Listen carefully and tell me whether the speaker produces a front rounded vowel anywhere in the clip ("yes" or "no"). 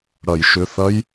yes